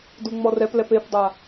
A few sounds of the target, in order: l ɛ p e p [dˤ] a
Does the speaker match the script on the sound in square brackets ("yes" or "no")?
yes